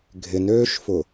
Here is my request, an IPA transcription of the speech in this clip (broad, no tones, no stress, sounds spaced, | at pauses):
ɡʱ ɪ n øː ʃ f ʊ